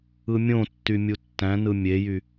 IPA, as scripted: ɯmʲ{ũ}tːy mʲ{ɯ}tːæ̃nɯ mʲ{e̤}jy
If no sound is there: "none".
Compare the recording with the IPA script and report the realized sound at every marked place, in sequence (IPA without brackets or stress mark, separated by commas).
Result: õ, u, e